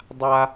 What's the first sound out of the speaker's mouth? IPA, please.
dˤ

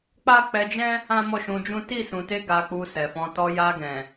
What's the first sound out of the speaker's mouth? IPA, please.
k͡p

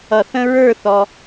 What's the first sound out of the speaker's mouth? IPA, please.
ʌ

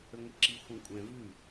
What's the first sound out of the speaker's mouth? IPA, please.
ə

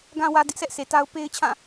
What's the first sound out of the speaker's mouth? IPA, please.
ɡ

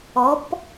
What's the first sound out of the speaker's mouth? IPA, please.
ɔ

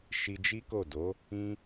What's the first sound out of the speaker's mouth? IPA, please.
ʃ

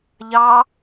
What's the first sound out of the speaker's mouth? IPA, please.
ʎ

